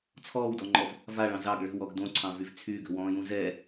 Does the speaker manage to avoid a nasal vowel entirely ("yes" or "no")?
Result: no